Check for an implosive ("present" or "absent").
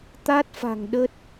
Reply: present